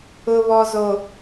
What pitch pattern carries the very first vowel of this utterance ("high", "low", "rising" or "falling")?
low